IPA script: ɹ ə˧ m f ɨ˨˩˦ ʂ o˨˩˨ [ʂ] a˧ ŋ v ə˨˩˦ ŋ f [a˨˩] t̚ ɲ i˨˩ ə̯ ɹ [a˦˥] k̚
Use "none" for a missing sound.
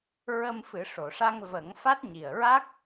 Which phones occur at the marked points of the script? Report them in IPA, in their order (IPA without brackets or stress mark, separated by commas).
ʂ, a˦˥, a˦˥